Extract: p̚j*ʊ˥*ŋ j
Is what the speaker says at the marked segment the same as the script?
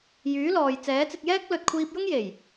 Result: yes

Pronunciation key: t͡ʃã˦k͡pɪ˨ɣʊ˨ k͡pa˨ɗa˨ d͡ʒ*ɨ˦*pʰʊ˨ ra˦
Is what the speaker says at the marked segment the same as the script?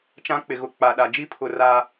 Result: no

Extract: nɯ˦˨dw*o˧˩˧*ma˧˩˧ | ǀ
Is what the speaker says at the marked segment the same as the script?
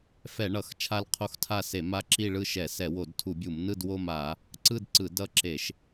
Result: no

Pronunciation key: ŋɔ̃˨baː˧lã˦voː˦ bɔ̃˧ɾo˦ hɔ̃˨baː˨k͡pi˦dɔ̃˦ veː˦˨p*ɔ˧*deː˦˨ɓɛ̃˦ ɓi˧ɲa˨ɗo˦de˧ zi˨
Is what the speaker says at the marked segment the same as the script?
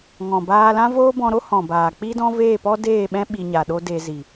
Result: no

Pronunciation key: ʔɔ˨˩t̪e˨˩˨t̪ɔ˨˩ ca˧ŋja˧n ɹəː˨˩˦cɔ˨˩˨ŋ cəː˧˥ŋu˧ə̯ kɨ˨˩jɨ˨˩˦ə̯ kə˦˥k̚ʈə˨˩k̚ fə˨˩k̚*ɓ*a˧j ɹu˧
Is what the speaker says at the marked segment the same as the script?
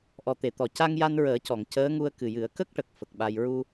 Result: yes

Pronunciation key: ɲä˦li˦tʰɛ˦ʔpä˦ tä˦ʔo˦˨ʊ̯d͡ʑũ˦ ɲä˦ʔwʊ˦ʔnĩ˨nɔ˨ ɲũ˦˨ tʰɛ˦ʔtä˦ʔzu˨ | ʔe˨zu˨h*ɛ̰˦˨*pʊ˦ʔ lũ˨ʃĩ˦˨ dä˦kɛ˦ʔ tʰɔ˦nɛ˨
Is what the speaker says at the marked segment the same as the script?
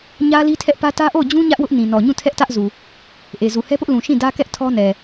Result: no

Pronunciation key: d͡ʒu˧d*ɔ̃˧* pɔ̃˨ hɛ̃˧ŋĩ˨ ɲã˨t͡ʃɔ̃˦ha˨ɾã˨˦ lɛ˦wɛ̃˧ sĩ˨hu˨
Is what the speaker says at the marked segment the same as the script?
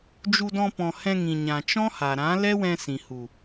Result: yes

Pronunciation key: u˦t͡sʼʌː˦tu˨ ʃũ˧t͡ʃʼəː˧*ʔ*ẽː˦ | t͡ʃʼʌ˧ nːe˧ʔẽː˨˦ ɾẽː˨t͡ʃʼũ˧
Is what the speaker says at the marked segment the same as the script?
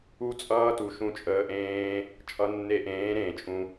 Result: yes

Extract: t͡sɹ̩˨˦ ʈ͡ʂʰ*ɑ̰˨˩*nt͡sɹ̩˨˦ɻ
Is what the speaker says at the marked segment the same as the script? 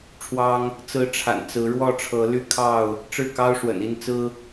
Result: no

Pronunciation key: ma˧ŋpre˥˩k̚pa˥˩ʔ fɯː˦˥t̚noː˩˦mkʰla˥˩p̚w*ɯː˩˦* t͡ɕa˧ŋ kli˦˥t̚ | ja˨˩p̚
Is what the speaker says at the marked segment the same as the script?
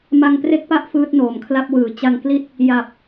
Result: yes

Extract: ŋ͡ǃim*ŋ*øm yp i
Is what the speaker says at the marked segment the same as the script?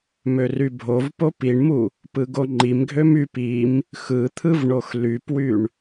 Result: no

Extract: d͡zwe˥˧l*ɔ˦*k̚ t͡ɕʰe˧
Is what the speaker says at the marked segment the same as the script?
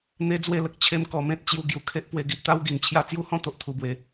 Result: no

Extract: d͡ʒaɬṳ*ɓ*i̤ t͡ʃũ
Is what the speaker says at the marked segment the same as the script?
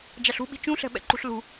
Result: yes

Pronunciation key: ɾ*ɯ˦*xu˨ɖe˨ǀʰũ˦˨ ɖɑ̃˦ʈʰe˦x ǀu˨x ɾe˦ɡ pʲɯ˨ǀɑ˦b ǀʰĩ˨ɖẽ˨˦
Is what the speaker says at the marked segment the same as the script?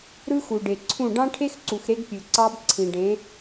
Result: yes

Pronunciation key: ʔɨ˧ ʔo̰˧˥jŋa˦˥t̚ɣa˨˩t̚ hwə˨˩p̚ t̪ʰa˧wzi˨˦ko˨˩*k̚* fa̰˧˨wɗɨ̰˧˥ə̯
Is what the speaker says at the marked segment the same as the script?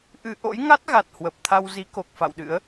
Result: yes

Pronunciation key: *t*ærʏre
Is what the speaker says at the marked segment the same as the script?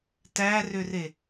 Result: yes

